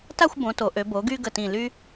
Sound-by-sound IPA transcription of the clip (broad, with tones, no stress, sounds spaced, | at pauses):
t a˥˧ xʷ b õ˩˧ t o˩˧ ʔ ø˩˧ b o˩˧ ɡ y˧ ɡ ə˧˩ t ĩ˧˩ l y˥